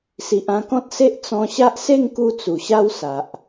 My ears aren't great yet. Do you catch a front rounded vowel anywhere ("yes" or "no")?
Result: no